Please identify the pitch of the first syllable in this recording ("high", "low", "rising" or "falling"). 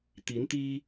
rising